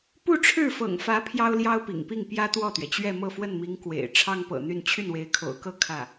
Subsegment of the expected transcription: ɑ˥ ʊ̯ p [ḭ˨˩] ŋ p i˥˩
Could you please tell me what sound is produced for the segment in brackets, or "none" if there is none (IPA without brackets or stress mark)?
ḭ˨˩